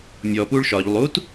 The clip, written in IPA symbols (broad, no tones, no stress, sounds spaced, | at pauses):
mʲ ɔ p u ɭ ʃ ɒ ʎ lˠ u t